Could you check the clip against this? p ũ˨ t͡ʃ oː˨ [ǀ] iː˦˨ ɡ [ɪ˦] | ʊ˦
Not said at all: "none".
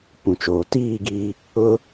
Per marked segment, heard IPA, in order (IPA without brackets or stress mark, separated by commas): t, i˦